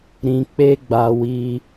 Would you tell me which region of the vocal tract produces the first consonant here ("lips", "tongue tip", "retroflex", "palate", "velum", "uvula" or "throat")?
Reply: tongue tip